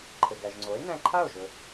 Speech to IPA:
ǃʰɘ˩ɡæ˩ʒŋ͡ǀo˩˥e̯ næ̃˧ǃʰa˥˩o̯ʒɵ˩

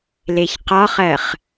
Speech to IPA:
leçqɒχɜχ

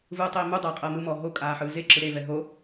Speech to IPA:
vɯːtˤei̯mudˤɤː qʼɤːmɯmɔː ɦo kʼaːħɯːzeǁɯ ɾevɛ ɦo

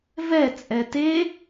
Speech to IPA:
vɛ t͡sʼɛte

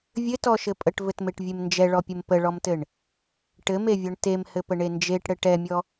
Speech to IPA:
vʲɘtɔʃɘ pʼəʈvɘtmeʈvʲem nd͡ʒɛɭɔpʲəm pəɭɔmtɘɳ | ʈɘmevʲɔɳ temhɘpəɳe nd͡ʒeʈɽɘ ʈɛmʲɔ

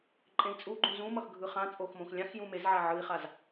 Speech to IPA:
ǃʼẽi̯t͡sʼuɡ͡ǃũ zũmʌx ɡʱɯχãt͡sʼox mõxlʲãxjũ mezʕa ʕɯi̯χaz

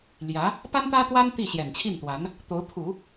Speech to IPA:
ljä˧˥ | pa˥nt̪ä˥t̪wa˥n t̪i˥˩ɕjɛ˨˩nt͡ɕʰi˥˩nt̪wa˧˥n | t̪o˧˥ʊ̯pʰu˨˩˦

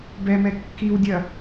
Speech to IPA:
bɛmɛ kːiwdʲɐ

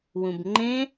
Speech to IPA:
wũbŋ͡ǃẽ

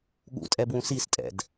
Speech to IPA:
ɠṵtʼɛbwũ sistʼɛ̰d

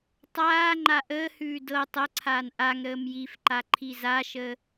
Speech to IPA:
tˤaː ŋ͡ǃaʔəːhʉː dɤ tˤɤǀʰaːn ʔaŋ ɾəːmjifǃa ǃʰizaʃəː

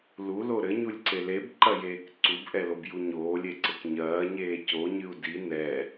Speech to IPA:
lulo ɾɘɲulʲǀe lebǃɐjeːk ǀubʔɛlobju ɲoːlʲeǀɘk ɲɐːɲeː coɲɨu̯ di nɛ

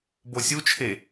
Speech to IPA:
bosʲut͡ʃʰe

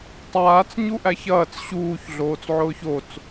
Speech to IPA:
tˤaːt͡s ɲuʔæçɐːt͡s ɕuːç ɮoːt͡sʕʊːçot͡s

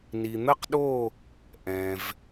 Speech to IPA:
ni˩n̪ə˥˨qɗo˥˨ | ʔɛ̃˩v

